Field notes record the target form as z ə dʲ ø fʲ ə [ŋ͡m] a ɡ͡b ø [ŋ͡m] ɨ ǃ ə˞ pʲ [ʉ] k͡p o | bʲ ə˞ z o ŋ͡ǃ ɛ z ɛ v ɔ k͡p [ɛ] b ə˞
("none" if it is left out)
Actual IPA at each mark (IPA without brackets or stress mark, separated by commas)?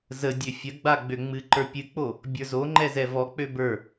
ɡ͡b, ŋ͡m, ɨ, ø